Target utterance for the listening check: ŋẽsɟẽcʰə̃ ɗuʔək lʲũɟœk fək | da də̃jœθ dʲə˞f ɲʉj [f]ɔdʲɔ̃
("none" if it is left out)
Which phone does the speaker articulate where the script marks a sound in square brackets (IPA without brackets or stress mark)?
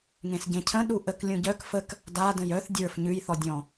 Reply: θ